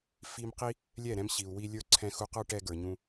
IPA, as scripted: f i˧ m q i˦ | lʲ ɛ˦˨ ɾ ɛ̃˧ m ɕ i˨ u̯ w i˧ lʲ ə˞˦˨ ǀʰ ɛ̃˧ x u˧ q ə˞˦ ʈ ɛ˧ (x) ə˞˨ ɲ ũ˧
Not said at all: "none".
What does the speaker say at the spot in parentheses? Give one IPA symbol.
ɡ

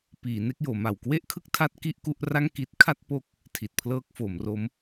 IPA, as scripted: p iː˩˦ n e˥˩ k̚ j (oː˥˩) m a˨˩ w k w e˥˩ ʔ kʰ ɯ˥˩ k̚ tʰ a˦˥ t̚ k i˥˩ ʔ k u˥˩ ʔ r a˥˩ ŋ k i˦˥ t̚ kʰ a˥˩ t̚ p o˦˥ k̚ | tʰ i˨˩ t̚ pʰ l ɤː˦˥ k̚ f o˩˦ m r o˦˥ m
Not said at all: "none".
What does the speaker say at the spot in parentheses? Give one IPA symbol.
oː˩˦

